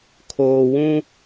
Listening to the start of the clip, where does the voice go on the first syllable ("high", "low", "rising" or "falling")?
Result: low